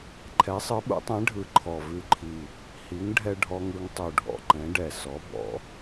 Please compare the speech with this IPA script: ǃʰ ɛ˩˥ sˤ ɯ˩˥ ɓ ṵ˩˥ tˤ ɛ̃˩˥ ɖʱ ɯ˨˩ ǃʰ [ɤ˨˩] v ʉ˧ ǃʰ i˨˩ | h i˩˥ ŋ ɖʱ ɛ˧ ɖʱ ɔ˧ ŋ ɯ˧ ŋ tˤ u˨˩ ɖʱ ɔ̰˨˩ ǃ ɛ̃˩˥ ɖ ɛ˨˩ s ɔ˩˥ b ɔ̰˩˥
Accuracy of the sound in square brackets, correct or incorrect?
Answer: incorrect